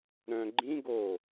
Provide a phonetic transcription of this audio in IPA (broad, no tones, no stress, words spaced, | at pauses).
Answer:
ɾœ̃ ɡ͡ǃĩ ɡo